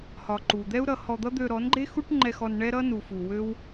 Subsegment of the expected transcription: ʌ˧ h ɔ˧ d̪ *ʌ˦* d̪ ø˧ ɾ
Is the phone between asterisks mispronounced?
no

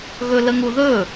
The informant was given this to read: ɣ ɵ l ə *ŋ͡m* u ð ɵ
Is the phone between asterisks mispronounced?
yes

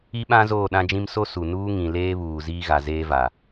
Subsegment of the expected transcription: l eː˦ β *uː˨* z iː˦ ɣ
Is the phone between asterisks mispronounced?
no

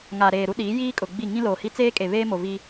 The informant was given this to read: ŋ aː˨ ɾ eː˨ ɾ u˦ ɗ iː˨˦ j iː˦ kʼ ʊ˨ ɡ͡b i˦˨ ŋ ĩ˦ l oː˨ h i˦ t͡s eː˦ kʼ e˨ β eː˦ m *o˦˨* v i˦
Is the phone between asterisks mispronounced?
yes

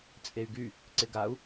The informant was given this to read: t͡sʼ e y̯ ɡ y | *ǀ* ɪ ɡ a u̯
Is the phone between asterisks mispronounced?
no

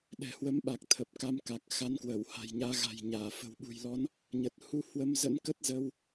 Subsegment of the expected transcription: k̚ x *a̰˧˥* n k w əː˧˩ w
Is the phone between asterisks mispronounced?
yes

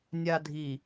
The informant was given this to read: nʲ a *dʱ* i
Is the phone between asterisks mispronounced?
no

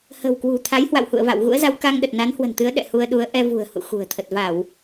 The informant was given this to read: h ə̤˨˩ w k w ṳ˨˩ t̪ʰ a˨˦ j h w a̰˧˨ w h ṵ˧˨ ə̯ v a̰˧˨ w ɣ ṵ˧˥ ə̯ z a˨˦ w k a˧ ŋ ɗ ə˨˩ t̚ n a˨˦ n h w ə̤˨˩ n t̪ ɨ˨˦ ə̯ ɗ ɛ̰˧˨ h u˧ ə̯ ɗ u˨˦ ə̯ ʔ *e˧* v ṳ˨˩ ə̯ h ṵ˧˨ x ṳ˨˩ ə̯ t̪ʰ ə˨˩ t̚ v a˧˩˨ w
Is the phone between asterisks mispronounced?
yes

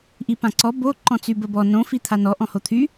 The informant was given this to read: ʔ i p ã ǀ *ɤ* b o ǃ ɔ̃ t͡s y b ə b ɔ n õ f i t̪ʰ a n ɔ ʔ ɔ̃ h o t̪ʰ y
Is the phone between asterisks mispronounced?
yes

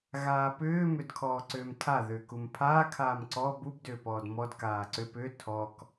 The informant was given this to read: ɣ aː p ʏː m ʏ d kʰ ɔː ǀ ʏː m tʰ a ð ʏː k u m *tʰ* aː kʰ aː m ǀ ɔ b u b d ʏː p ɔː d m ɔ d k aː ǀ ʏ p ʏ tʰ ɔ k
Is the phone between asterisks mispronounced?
yes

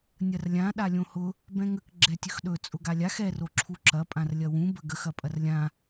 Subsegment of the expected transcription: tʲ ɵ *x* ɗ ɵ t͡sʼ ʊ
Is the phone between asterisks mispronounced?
no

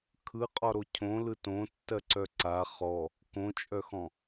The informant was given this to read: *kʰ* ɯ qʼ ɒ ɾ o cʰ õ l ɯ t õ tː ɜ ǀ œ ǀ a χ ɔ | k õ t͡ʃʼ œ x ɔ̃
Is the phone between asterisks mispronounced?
no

